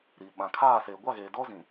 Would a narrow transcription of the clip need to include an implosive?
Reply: yes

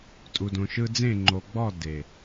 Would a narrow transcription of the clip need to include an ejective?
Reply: yes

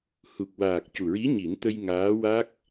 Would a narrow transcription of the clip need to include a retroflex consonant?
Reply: no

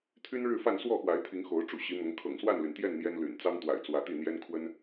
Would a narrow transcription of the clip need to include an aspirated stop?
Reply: yes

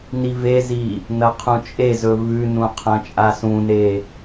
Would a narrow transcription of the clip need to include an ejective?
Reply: yes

